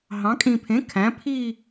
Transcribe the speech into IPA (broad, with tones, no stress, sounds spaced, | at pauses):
ɦ ɑ̃˩˧ kʼ ĩ˨˩ pʰ ẽ˩˥ kʰ æ̃˩˥ pʰ i˥˧